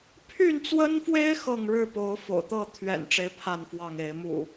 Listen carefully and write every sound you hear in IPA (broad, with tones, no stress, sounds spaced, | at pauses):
pʰ y˥˨ n t͡s w ə˦ n f w e˦ ɪ̯ x ɤ˥˨ ŋ ɻ ɻ̩˥˨ p o˨˦ ʊ̯ f o̰˨˩ ʊ̯ t̪ ɤ˥˨ t̪ʰ ɥ ɛ̰˨˩ n ʈ͡ʂ e˨˦ ɪ̯ pʰ a˥˨ n f w ɑ˥˨ ŋ e˨˦ ɪ̯ m ṵ˨˩